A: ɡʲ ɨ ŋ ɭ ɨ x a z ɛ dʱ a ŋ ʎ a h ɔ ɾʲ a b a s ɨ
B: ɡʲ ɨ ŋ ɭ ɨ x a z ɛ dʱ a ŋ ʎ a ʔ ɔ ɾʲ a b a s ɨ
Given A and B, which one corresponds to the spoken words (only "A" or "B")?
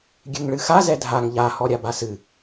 A